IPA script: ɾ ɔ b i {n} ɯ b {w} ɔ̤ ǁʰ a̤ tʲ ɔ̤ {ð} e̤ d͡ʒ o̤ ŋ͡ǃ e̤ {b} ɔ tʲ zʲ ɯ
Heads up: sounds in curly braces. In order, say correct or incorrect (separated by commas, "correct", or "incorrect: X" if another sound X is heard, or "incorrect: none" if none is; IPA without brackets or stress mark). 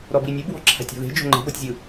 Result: incorrect: nʲ, correct, correct, correct